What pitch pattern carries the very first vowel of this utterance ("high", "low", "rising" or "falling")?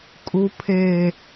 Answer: low